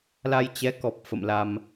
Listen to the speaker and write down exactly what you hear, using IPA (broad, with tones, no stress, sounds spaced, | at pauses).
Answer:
l a˧ j t͡ɕ ɛ˨˦ k ɔ˨˩ p̚ f ə̰˧˨ m l a˧ m